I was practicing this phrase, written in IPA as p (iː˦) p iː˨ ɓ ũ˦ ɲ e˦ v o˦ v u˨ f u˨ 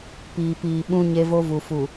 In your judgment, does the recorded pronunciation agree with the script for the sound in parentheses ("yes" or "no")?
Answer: no